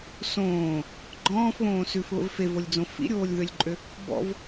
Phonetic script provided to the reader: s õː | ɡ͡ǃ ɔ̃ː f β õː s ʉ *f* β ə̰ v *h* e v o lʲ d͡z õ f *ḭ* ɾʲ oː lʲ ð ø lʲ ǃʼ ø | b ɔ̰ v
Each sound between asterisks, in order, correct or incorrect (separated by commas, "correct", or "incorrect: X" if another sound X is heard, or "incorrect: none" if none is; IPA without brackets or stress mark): correct, incorrect: f, correct